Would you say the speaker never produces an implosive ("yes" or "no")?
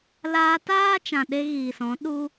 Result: no